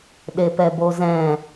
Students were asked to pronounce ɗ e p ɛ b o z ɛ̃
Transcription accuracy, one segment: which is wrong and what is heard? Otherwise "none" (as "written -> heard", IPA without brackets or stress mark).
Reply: none